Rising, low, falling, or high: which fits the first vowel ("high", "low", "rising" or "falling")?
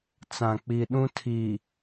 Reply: low